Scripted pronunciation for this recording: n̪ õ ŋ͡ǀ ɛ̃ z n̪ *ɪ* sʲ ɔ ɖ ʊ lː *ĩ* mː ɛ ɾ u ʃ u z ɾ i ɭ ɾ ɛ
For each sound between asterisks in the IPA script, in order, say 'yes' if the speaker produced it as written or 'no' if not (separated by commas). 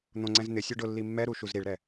yes, no